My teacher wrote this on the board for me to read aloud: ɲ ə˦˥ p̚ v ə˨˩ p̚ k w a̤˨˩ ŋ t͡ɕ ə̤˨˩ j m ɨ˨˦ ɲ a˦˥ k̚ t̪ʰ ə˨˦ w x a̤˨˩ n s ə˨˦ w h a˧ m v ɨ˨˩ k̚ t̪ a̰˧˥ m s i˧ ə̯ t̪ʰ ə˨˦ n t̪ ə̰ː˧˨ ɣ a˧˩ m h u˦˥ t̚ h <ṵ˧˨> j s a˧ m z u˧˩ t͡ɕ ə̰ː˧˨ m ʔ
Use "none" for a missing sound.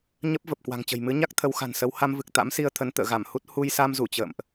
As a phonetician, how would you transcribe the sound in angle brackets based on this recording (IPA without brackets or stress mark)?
u˧